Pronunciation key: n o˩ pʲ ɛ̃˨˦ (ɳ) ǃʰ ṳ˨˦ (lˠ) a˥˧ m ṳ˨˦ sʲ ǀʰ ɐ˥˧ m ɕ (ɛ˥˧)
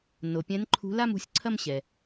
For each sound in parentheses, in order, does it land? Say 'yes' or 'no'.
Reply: no, no, no

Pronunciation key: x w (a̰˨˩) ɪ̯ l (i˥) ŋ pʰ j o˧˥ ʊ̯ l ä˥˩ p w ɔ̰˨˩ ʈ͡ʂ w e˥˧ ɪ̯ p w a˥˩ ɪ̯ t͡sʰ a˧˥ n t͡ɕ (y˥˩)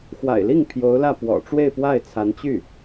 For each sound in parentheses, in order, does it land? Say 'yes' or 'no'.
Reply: yes, no, yes

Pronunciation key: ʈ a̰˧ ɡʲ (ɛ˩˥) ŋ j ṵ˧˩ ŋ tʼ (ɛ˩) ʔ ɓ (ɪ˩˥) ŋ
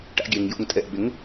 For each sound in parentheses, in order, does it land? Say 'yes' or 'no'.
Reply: no, yes, yes

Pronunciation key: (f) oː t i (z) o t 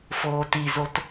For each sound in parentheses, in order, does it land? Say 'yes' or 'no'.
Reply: yes, yes

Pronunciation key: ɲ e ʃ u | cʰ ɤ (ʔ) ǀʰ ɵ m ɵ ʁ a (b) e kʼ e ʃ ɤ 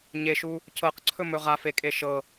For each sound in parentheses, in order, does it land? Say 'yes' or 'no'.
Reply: no, no

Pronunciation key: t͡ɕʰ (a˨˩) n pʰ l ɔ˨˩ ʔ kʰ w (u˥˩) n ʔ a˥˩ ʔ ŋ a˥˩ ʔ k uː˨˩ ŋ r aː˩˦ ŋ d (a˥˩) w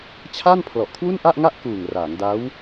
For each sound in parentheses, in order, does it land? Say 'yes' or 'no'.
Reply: no, yes, no

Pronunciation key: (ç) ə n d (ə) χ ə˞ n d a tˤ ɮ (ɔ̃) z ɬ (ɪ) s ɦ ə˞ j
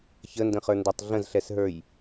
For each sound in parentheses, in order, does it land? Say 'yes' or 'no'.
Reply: yes, no, no, no

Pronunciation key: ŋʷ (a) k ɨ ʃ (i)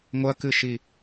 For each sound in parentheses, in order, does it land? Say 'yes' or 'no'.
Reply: no, yes

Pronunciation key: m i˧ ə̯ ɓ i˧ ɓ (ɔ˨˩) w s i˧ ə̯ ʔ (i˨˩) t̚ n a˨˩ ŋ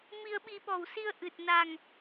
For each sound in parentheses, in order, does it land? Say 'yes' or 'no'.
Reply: yes, no

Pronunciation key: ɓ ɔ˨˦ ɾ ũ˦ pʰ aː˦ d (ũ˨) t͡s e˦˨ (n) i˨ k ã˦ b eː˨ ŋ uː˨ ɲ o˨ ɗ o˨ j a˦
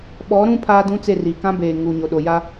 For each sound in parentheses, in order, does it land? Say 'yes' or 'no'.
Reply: no, no

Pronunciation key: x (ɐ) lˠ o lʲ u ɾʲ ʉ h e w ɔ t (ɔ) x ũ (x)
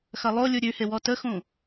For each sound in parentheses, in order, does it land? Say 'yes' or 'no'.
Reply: yes, no, no

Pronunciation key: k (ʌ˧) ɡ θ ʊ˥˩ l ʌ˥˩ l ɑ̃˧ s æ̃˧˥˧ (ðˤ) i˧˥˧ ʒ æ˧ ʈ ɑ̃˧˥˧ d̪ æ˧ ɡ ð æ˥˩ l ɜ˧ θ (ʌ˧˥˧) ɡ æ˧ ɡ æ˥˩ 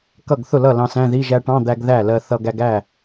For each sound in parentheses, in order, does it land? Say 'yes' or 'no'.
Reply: no, no, no

